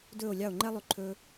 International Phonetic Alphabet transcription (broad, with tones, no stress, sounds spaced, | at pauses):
d ɵː˦˨ o̯ lʲ ɑ˦˨ o̯ ŋ͡ǃ ɛ˦ lˠ ʉ˨ ǃʰ ɵː˧